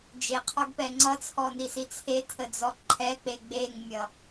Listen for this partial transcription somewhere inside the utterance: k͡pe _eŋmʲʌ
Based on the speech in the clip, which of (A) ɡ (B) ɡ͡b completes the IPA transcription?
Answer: B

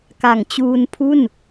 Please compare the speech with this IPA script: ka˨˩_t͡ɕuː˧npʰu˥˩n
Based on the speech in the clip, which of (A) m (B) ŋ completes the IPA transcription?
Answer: B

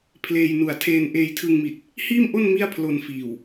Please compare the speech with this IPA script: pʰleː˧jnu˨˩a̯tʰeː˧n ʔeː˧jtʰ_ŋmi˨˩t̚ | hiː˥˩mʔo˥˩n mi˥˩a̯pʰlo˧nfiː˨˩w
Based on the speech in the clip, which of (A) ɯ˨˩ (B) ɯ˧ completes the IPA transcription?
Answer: B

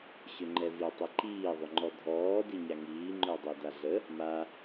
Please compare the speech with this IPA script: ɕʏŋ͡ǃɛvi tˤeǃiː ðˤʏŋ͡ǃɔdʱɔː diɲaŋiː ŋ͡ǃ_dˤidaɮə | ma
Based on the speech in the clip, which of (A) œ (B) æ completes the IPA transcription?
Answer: A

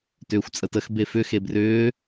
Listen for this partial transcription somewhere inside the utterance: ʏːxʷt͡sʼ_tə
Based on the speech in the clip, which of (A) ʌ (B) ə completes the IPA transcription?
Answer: B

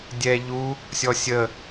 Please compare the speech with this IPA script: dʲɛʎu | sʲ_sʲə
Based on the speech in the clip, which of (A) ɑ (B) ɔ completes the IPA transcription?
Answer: B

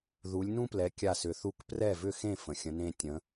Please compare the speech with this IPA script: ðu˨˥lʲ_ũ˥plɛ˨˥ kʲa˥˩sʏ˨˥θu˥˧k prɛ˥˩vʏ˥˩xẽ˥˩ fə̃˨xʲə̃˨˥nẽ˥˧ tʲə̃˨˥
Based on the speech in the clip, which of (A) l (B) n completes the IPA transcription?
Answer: B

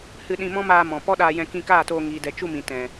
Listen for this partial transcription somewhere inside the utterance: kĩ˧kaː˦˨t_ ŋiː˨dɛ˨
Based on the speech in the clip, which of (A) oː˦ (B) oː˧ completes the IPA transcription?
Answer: B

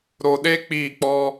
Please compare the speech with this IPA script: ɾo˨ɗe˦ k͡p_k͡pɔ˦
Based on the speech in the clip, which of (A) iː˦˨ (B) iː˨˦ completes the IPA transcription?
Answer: A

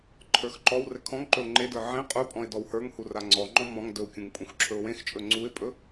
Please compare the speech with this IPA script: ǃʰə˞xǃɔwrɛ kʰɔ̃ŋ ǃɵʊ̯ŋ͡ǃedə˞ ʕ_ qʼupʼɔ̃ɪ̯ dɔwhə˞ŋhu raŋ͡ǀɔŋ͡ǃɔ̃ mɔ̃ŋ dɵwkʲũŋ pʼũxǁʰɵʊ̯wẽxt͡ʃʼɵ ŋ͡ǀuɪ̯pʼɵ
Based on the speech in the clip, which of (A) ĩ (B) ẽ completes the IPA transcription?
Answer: B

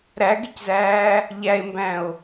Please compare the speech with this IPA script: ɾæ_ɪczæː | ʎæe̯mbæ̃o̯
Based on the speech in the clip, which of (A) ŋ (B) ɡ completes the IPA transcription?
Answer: B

